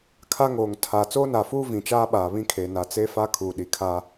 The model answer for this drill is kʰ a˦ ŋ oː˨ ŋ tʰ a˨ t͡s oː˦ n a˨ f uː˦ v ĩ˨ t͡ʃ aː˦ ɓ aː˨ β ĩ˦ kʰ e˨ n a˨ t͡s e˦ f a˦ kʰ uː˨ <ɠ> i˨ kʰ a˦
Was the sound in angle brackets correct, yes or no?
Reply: no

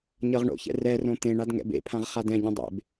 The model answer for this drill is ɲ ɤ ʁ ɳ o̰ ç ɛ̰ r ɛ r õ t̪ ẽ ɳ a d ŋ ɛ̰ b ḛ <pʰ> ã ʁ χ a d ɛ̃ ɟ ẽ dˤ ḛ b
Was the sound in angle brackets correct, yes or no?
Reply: yes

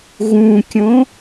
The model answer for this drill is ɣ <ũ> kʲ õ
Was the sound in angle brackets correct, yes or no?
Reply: yes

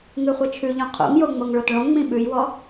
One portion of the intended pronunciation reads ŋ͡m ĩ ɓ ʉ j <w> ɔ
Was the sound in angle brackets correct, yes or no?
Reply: yes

